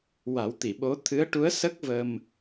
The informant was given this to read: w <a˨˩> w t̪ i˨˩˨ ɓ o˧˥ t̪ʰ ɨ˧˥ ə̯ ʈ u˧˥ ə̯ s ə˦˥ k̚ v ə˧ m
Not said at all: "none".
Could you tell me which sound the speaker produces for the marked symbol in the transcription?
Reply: a˨˩˦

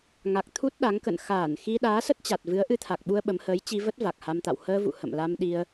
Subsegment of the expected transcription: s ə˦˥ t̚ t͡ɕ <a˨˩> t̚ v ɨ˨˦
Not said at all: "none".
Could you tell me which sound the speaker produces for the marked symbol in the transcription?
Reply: a˨˩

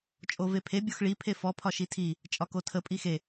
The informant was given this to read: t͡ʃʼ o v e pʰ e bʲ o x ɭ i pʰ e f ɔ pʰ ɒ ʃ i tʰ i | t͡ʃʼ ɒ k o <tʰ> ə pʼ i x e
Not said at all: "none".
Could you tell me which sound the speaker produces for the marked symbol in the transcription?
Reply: tʰ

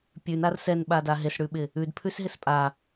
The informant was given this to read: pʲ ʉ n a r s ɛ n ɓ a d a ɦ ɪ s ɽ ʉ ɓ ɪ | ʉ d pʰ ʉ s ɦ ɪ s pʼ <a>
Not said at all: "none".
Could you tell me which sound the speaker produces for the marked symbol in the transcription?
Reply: a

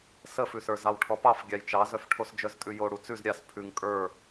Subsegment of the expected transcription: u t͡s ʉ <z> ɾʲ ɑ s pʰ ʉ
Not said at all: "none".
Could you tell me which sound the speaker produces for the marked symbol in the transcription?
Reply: z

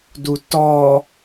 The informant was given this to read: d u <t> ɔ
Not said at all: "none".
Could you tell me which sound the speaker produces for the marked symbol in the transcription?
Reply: t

